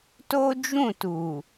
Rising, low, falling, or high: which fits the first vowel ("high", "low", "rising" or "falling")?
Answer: high